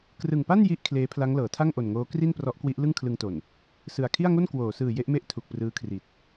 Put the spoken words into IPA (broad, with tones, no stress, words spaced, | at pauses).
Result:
krɯ˨˩ŋpa˥˩n ji˥˩ʔ kʰleː˦˥pʰla˦˥ŋ lɤː˩˦tʰa˥˩ŋʔo˨˩nŋoː˦˥ kri˥˩nprɔ˦˥ʔkwi˦˥ʔ lɯ˥˩ŋkʰlɯ˧ŋto˨˩n | sɯ˨˩a̯kʰi˥˩a̯ŋo˥˩n kwoː˩˦sɯː˨˩ je˥˩ʔme˥˩ʔ tʰu˨˩k̚prɯː˦˥kʰri˨˩t̚